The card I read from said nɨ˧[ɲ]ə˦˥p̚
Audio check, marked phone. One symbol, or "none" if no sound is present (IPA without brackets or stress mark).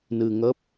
ŋ